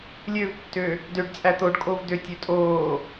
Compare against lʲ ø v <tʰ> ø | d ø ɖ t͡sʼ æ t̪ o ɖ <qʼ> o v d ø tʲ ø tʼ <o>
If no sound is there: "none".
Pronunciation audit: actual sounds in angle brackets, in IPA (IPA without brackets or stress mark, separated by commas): tː, kʼ, oː